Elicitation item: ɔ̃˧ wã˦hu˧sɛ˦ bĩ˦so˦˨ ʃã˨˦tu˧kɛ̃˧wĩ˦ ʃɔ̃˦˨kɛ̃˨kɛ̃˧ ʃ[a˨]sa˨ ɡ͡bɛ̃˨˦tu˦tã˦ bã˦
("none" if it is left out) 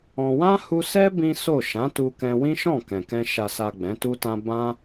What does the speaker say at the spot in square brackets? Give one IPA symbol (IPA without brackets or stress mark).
a˨